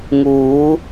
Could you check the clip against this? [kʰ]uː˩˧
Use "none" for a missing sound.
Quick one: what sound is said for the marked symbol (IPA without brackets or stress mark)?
ŋ